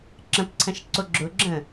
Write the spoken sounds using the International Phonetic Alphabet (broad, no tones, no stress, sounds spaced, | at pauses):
ǁ ə̃ p ǀʰ ɐ̃ ʃ ǀ o ɡ͡ǁ ʊ ɡ͡ǁ ə̃